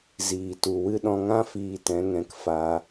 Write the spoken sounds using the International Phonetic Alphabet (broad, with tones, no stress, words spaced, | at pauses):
ziː˨ tu˨wɨ˦ ɗɔ̃˧ŋã˦ fiː˧tɛ̃˨˦ŋɛ̃˧k fa˧